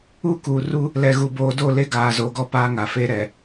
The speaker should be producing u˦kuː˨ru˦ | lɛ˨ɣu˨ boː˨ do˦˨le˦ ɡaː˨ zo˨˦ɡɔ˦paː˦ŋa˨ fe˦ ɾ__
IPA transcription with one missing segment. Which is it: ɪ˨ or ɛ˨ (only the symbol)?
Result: ɛ˨